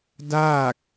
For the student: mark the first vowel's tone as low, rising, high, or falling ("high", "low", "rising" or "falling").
falling